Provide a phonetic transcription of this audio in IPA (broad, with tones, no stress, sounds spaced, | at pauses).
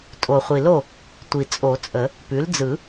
tʼ o˨˩ χʷ i˨˩ l o˥˩ | tʷ i˨˩ t͡sʼ o˨˩˦ t͡sʼ ə˨˩˦ | p ʉ˩˥ l d͡z ɯ˨˩˦